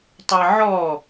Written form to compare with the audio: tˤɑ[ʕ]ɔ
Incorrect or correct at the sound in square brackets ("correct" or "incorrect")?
correct